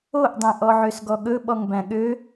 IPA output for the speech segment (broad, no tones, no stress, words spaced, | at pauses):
oʔdˤẽ ʔɔʕøsɡɔɠɵ ɓɔŋbæ̃ɠø